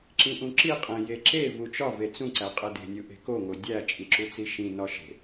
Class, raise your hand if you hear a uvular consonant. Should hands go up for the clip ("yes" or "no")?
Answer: yes